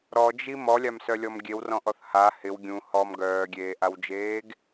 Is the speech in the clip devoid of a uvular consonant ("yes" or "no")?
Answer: yes